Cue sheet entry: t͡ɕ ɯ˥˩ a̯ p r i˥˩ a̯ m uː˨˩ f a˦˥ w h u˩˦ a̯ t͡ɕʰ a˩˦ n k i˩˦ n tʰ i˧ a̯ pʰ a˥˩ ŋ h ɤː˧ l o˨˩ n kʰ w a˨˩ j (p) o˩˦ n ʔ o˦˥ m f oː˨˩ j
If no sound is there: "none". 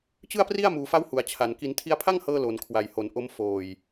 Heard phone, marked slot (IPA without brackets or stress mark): h